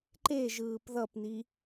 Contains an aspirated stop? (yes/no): no